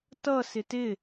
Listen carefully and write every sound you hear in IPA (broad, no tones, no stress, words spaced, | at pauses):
tʌ sɪtɪ